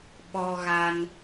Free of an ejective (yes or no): yes